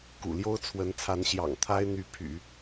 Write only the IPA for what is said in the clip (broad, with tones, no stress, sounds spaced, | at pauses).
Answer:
k ṵ˨˩ l j o˥ ʊ̯ t͡sʰ w ə˧˥ n t͡sʰ a˧˥ n ɕ j ɑ̰˨˩ ŋ t̪ʰ a˥ ɪ̯ n̪ y˧˥ pʰ y̰˨˩˦